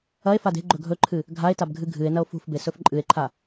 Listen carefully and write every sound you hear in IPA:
ɐe̯fad e̤ɡ͡ǃɵ ɡʱɵǃʰɨ | ɡʱae̯tabɡʱɨ ɡʱɨe̯nɐo̯ fṳfbesɵf ǃʼɨe̯ǃʰa

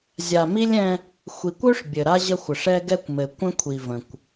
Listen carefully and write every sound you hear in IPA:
zʲa˨mi˦lʲɛ̃˦ | xʷi˨kʷø˦ʂ bʲɘ˨ɾa˦ʑə˦xʷə˨ʂ ɛ˦ɡɛ˦kʷmɘ˨ kʷə̃˦kʷʰi˨və̃˨kʷ

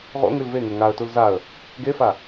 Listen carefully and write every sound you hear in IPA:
ʁo̰ŋʉl veŋɵ ŋaə̯tul zaə̯ | ɡefa

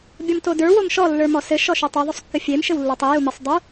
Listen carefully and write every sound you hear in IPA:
bʲɔmtodə˞ womʃɔ lːə˞mɔsɘ ʃɔʃutˤo ðˤosˤkːɘfʲem ʃɘwlːə˞tˤi jumɘsˤ dˤu

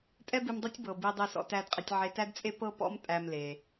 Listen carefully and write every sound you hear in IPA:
tʼɛ˥bi˧mdˤɤ˥tʲ bɤ˩bi˧ dˤe˧sɔ̰˧tæ˧d qʼe˧tʲʕe˧tæ˥dt͡sʼe˥ pɤ˥pɔ̰˥m tʼæ˧mle˩

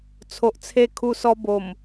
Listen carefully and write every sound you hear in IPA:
t͡sʰo˨ʔt͡sʰe˧ kʰu˧sɔ˧ bo˨˩m

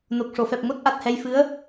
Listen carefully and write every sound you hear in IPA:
no˨˩k̚ ʂo˨˩˨fɛ˨˩p̚ ŋo˦˥t̚ʔa˨˩t̚hɛ˧jfɨ˧˥ə̯

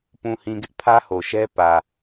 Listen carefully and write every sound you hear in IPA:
pũ˨hĩ˨ɡɪ˦ʔ pʰä˦ho˨ʃɛ˦ pä˨

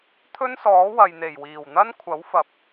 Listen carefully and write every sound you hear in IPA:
t̪ʰɵ˥nsɔː˨˥wɐ˨jn̪e˨˩j wiː˨˩wn̪ɐ˥nkʷʰɐ˨˥wfɐ˨p̚

